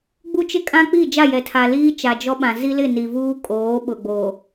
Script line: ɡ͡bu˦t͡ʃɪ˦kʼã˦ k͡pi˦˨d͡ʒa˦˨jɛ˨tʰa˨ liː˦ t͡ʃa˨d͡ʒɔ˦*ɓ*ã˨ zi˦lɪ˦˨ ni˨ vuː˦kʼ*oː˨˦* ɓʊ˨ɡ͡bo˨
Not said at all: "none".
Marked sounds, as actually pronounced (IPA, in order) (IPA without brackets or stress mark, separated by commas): ɓ, oː˨˦